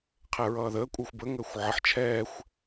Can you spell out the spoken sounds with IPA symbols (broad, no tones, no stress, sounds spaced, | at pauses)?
qʰ ɛ ɹ ʌː ð əː kʷʼ əː xʷ b ə ŋ əː xʷ ʕ ə ħ t͡ʃʰ ɛː xʷ